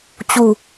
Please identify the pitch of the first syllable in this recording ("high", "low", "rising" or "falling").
low